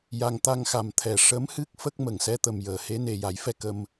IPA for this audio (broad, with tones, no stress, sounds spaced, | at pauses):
j a˧ ŋ t̪ a˧ ŋ x a˨˩ m t̪ʰ ɛ˨˩ ʂ ə˧˥ m h ɨ˦˥ k̚ f ə˦˥ k̚ m ə˨˩˨ ŋ s ɛ˧˥ t̪ ə˨˩ m j əː˨˩ h e˧˥ n e˨˩ j a˨˩˦ j f ɛ˧ k ə˧ m